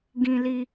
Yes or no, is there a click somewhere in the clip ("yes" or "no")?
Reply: no